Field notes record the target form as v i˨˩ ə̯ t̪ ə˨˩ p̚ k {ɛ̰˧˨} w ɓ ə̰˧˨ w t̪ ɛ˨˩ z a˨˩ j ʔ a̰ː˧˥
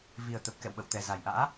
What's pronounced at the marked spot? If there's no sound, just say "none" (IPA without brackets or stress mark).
ɛ̰˧˨